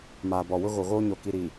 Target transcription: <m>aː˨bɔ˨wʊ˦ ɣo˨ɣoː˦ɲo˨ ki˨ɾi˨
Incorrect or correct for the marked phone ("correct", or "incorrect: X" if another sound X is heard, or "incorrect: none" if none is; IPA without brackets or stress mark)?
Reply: correct